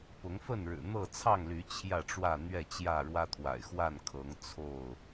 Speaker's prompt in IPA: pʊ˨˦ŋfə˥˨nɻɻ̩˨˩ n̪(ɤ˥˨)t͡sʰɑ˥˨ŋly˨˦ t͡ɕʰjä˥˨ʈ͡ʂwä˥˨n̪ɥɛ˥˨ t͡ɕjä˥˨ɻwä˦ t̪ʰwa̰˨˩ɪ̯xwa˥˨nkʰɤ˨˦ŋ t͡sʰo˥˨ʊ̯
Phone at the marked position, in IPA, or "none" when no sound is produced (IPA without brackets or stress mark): ɤ˥˨